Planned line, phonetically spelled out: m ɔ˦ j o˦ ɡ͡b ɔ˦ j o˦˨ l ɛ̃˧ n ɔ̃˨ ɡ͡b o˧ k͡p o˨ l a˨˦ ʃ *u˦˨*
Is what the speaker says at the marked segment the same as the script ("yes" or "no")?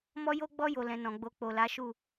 yes